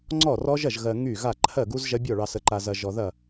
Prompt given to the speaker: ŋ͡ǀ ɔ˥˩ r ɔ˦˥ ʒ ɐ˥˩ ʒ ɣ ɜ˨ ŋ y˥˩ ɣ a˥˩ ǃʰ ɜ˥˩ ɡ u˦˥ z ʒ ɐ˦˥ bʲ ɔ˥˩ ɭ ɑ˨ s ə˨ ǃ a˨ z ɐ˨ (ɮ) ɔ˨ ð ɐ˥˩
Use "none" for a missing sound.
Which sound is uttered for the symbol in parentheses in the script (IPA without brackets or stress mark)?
ʒ